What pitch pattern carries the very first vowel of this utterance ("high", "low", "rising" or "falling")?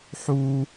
high